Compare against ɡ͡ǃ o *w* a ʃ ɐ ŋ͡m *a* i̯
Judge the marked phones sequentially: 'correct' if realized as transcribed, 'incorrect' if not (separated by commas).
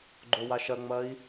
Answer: correct, incorrect